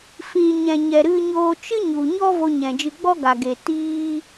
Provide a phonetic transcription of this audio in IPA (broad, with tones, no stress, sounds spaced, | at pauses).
f ĩ˨ ɲ ɛ̃˨ ɲ ɛ˨ ɾ ɨ˧ ɲ oː˧ t͡ʃ ɨ˦ ɲ u˨ ɲ ɔ˦ v o˧ ɲ ɛ̃˨ d͡ʒ ɨ˧ ɡ͡b ɔ˦ ɡ a˨ ɡ e˨ t iː˦